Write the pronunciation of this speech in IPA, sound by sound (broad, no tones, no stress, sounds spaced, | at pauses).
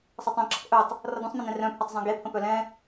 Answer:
sˤ a tˤ œ̃ ǁ ʌ k ʔ œ tˤ | r ʌ d̪ œ̃ sˤ m ẽ n ɛ̃ r œ̃ pʰ œ tˤ zˤ œ̃ ɡ e pʰ ə̃ p œ l ɛ̃